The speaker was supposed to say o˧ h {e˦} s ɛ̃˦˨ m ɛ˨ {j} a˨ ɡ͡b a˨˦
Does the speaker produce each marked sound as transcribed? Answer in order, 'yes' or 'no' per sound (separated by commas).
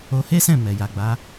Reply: yes, yes